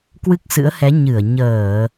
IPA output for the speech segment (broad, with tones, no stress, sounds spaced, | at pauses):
k w ɨ˦˥ k̚ s ɨ̰˧˥ ə̯ h ɛ˨˦ ɲ ɨ˧˩ ə̯ ɲ əː˧˩˨